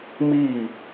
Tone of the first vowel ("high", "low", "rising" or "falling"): falling